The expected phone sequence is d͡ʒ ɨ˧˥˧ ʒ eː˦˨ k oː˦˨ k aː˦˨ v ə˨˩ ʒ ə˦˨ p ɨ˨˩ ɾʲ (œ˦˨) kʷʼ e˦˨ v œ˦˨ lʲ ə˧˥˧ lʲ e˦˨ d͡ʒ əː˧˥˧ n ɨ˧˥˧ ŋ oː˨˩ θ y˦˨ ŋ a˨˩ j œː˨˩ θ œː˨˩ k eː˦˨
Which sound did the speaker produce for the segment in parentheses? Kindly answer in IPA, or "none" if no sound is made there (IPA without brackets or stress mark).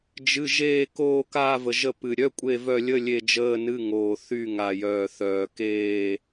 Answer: œ˧˥˧